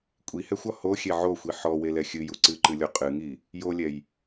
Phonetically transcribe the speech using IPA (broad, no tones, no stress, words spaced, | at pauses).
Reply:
kʷʼihɛxʷɒ hoxʲe ʕoxʷi ħɔwelɛ xʲɨju ǀɨǃɨlʲo qʼɨŋi | jolʲɛj